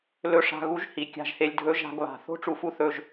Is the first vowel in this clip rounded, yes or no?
yes